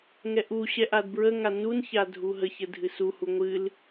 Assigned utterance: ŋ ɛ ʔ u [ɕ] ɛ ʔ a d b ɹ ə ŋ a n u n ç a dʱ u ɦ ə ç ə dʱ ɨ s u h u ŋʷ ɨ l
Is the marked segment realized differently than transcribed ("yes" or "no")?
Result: no